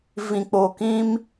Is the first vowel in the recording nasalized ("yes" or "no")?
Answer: yes